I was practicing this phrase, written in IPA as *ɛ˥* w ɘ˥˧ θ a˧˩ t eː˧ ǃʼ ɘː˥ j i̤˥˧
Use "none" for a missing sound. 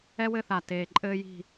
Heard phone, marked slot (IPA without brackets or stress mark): ɛ˥